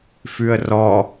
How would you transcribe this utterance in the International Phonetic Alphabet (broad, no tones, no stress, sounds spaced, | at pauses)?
f ʉ ə̯ r ɔ